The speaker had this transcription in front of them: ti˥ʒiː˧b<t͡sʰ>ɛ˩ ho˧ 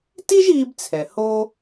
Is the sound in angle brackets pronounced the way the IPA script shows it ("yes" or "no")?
yes